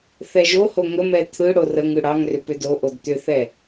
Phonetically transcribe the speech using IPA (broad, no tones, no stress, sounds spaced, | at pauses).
θ ɛ ʒ o h o ŋ ə m ɛ t̪ʰ ɯ ɽ o r ə ŋ ɯ ɽ ɑ ŋ r ʏ p ʏ d o ʔ o d t̪ ʏ θ ɛ